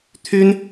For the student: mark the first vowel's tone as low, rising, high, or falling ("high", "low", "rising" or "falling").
high